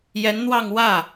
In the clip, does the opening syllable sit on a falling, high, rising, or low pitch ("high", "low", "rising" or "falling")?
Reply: rising